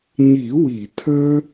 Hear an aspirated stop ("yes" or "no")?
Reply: yes